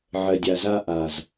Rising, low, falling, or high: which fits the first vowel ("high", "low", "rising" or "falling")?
low